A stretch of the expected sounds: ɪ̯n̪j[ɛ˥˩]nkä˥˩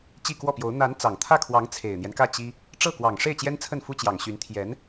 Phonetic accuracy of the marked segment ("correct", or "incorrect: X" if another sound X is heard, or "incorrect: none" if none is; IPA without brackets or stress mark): incorrect: ɛ˦